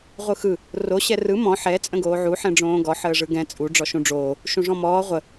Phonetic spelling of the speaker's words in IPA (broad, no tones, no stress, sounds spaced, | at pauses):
ʁʷ ɯ x ɯ | r o ɕ ɛ r ɯ m ɔ̃ ħ ɛ t͡sʼ ə̃ ɡ oː ʕ u ħ ɛ̃ ɖ͡ʐ õː ɡ ɔ ħ əː ʐ ɯ ɡ ɛ̃ t͡sʼ u ɖ͡ʐ ɔ ʃ ũ ɖ͡ʐ oː | ʃ ũ ʐ ɔ̃ m ɔː ʁʷ ə